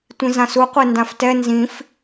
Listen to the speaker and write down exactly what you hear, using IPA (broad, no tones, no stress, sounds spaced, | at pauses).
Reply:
tʷ ĩ z ã s u qʷ e n d ã f t ɛ n z ĩ f